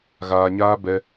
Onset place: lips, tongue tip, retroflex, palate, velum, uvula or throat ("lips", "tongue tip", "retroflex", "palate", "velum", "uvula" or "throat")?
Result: velum